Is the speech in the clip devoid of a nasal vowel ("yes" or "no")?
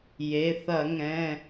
no